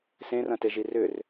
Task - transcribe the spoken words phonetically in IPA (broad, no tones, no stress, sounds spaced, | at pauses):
s ẽ r ɐ̃ t e ʒ i r ʏ r